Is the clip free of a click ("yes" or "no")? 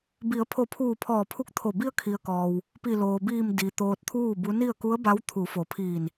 yes